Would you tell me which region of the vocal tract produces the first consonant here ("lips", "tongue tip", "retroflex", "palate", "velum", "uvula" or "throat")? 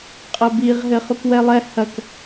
uvula